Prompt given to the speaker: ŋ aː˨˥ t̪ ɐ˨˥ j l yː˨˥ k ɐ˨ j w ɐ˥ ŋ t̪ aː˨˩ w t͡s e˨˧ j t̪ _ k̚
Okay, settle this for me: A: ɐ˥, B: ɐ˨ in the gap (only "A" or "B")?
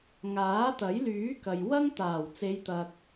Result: B